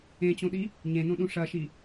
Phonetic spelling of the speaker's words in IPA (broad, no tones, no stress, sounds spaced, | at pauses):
ẽ t͡ɕ õ ɗ i | ɲ ẽ n õ ɗ ũ ʂ ɐ ʃ i